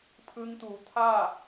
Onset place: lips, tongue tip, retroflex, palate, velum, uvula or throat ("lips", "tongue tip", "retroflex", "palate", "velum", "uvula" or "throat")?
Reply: lips